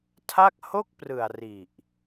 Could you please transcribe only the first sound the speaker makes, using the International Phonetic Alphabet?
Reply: tʰ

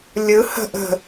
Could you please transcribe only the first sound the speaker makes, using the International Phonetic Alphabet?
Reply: lʲ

